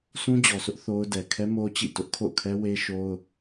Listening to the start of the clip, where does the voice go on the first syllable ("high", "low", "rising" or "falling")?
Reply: high